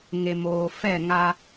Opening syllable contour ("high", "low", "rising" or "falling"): low